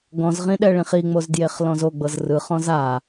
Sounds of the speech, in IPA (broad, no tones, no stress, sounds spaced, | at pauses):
ɡ ɔ̃ z ʁ ĩ ɗ ɛ ɭ ĩ χ i ŋ͡m o z d j e χ l ɔ̃ z o ɡ͡b ɤ z r ɯ χ ɔ̃ z a